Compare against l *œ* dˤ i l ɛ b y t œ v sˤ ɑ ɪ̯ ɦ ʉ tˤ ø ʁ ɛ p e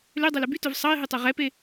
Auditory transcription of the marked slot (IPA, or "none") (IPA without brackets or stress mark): ø